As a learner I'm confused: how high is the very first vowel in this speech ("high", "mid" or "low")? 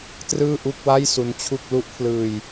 high